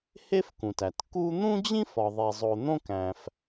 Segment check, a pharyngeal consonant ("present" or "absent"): absent